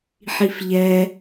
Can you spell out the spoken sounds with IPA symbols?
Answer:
ħ i f ʎ ɛ

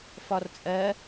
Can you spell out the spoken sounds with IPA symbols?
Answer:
f ɒ r t͡sʼ ɜ

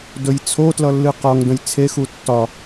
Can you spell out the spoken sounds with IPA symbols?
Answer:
d ɵ j t͡sʰ o t l ʌ lː ɨ q ɒ ŋ d ə̃ j t͡sʰ e x u tː ɒ

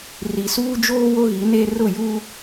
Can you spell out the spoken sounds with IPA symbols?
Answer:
r i˨ s uː˦ d͡ʒ oː˦ w o˦ ɣ i˨˦ n e˦ r ʊ˦˨ j u˦

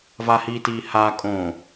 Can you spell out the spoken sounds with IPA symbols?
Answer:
v a h iː t iː h aː kʼ õː

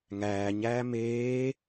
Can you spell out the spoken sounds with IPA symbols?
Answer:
ŋ æː ɲ æː m eː

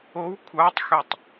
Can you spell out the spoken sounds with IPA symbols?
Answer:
o w kʷʰ ɑ tˤ x ø tˤ

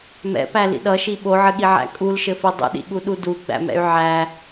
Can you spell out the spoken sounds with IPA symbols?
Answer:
m ɛ̰ p æ l ḭ ɗ ʌ ʃ i ɓ o ʕ ɘ ɠ i ʕ æ̰ kʼ u l ʃ ɘ f i dˤ ṵ ɗ ḭ ɠ u ɗ u d u ɡ͡b æ̰ m ɛ̰ y̯ ʕ æ

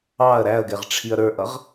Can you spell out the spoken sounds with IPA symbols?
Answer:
ɑ ɐ̯ ɾ æ ɐ̯ ɡ ɛ ʁ ʈ͡ʂʰ i ɐ̯ ɾ ə˞ ʔ ʌ ʁ

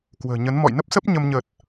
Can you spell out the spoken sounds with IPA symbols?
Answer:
k w ə̤ː˨˩ ɲ ə˨˦ n m ɔ̰˧˨ j n ə˦˥ p̚ s ə˦˥ p̚ ɲ ə˧ m ɲ ə˨˩ t̚

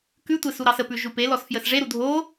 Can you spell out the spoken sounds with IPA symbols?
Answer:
k ʉ tʷ e s u ɾ ɑ s ə p ʉ ʒ u p e l ɔ s f j ə s ʐ e ɾ u dʱ o

